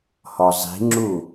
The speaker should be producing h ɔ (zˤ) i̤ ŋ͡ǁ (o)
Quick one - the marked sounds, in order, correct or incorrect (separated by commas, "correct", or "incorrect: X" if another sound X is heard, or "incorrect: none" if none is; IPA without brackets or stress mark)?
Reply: correct, incorrect: u